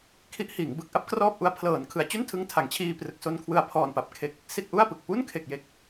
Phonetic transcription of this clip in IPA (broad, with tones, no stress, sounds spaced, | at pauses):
kʰ i˦˥ ʔ h iː˩˦ ŋ b ɯ˨˩ k̚ ʔ a˥˩ p̚ k r ɔː˥˩ p̚ ʔ u˦˥ a̯ pʰ l ɤː˩˦ n kʰ ɯ˩˦ a̯ t͡ɕ u˥˩ n tʰ ɯ˧ ŋ tʰ a˩˦ ŋ t͡ɕʰ iː˧ p r ɯ˨˩ k̚ s o˧ n kʰ w ɯ˨˩ a̯ pʰ ɔː˨˩ n p a˨˩ p̚ kʰ e˨˩ k̚ | s i˥˩ t̚ ʔ u˥˩ a̯ p ɯ˨˩ k̚ p u˥˩ n kʰ e˨˩ k̚ j e˨˩ k̚